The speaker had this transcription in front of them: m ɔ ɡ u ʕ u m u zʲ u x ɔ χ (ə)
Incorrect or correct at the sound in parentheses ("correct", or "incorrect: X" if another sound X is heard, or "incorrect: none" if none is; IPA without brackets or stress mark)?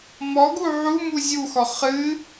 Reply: incorrect: ɨ